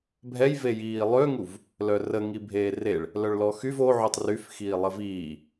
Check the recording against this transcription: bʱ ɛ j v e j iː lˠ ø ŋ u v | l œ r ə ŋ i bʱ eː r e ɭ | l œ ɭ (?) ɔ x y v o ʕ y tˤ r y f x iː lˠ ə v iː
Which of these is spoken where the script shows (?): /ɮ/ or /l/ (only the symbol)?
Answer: l